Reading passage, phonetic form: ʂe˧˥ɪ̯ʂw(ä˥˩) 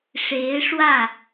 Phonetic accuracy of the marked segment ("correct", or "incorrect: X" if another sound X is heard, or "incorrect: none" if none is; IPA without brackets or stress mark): correct